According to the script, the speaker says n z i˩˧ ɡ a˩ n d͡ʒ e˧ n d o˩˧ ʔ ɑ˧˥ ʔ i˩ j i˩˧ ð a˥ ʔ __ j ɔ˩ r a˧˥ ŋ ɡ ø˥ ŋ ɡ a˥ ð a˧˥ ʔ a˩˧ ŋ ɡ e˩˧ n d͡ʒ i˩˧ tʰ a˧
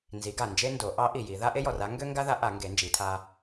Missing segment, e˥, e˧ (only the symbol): e˥